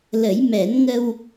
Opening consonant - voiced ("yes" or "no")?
yes